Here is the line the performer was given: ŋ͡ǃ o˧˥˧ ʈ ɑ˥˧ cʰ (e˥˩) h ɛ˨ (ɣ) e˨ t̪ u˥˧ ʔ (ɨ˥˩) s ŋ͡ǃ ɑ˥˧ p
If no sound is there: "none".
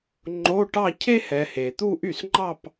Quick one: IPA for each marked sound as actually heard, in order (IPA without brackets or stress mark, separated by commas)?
e˥, h, y˥˩